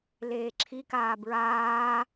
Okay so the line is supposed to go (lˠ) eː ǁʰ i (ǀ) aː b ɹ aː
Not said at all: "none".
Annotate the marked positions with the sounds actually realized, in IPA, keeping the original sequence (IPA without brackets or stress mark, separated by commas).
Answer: l, k